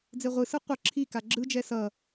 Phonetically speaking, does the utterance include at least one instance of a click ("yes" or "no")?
yes